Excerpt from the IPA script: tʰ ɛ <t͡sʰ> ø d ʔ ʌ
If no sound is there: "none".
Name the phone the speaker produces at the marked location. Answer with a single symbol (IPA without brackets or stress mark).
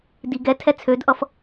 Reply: t͡sʰ